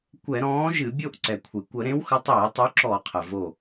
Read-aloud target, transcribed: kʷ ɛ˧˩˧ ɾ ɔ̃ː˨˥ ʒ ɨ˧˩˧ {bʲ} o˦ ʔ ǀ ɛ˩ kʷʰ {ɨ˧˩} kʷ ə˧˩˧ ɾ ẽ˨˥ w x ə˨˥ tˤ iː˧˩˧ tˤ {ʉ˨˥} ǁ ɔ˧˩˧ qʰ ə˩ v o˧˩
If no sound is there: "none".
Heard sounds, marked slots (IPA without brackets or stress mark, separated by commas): bʲ, ɨ˩, ʉ˨˥